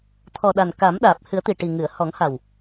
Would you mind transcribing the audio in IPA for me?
t̪ʰ ɔ˨˩ ɗ a˨˩ n k a˨˩˦ m ɗ aː˨˩ p̚ h ɨ˨˩˦ ə̯ t̪ i˨˩ ʈ i˨˩ ŋ ɨ˨˩˨ ə̯ h ɔ˨˩˦ ŋ h a˨˩ w

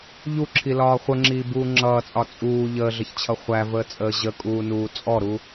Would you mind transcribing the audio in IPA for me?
ʎ u ǁʰ i l ɒː χʷ ə ŋ͡ǁ iː b uː ŋ͡ǁ ʌː t͡sʼ ɒ t͡sʼ uː ʎ əː ɮ ə ç t͡ɕʰ ʌ χʷ æ v əː t͡sʼ əː ʑ ə kʼ uː n uː t͡sʼ ɔ ɾ u

